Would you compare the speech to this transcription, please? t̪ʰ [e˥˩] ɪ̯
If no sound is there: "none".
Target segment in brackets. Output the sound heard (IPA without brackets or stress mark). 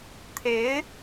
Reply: e˧˥